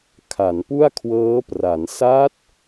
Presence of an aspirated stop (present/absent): present